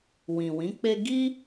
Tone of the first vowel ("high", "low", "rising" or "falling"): low